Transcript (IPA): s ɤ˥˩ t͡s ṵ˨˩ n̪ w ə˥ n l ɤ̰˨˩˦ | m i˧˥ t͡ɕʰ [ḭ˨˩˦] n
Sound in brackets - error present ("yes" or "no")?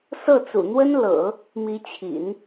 no